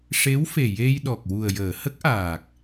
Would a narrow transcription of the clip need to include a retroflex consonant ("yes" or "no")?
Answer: yes